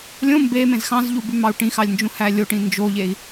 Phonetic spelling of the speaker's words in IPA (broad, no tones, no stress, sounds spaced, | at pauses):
lʲ õ m b e m ẽ z x ɑ̃ z ʎ u b y m ɑ u̯ ʈ ĩ x ɑ lʲ n d͡ʒ ũ h æ lʲ o ʈ ĩ n d͡ʒ o ʎ e i̯